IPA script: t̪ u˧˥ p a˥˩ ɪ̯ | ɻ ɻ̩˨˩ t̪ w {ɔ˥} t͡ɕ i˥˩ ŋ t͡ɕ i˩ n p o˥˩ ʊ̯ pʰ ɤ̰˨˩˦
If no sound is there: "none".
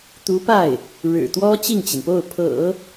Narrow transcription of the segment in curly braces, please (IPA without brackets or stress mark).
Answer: ɔ˥